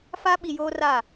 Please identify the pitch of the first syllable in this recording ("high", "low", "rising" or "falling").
high